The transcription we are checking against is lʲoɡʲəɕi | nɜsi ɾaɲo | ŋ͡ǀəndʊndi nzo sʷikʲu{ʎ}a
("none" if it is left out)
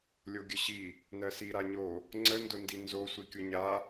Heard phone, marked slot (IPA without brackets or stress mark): ɲ